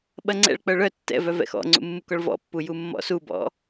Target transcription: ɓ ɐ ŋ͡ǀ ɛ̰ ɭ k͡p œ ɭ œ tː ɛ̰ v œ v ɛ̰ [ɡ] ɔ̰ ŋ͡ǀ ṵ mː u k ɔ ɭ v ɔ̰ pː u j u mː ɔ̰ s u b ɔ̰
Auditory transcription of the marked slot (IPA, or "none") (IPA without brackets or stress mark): x